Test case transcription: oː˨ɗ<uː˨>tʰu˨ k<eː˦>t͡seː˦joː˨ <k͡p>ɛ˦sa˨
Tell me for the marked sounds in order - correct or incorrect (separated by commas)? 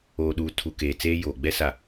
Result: correct, incorrect, incorrect